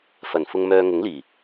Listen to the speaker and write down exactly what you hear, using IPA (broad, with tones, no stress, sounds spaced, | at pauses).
f ɐ˨˩ n f ʊ˨ ŋ m œː˨ ŋ ʊ˨˥ ŋ l iː˨˩